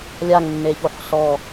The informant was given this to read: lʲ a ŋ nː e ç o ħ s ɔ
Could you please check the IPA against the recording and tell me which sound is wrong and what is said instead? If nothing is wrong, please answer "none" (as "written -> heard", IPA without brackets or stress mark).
none